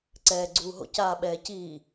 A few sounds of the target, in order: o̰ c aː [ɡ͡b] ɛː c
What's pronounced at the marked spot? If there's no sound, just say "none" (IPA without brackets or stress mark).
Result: ɓ